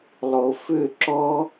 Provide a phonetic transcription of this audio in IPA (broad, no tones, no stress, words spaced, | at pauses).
lˠofʏ ǁɔ